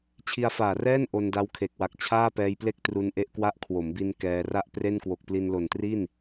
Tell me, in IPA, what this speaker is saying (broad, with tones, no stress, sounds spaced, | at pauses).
t͡ɕʰ i˧ a̯ f aː˨˩ r ɛː˥˩ n ʔ o˧ n d a˦˥ w kʰ e˨˩ k̚ w a˨˩ k̚ t͡ɕʰ aː˥˩ p ɛː˧ j p l e˥˩ k̚ t r u˦˥ n ʔ e˦˥ ʔ k w a˥˩ ʔ kʰ w o˩˦ m b i˧ n k ɛː˧ r a˥˩ ʔ p r e˥˩ n k w o˨˩ k̚ p l i˧ n l o˨˩ n t r i˥˩ n